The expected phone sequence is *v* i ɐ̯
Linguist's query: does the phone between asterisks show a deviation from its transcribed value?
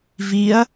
no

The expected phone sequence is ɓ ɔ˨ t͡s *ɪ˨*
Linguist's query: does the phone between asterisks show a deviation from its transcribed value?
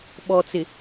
no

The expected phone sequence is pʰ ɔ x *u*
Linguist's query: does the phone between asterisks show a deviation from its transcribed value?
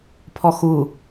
no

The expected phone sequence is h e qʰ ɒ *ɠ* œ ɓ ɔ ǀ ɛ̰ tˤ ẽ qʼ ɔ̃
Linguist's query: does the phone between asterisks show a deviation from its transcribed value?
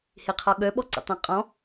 no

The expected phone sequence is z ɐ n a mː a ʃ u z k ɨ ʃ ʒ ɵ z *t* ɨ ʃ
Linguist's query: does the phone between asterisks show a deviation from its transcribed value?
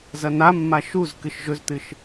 no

